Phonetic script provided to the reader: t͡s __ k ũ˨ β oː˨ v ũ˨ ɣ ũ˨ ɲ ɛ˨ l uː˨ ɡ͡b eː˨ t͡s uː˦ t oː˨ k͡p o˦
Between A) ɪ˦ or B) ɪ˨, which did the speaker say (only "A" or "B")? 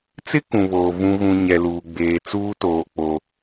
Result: A